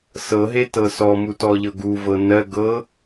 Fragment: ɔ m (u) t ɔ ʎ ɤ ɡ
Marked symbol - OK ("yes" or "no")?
yes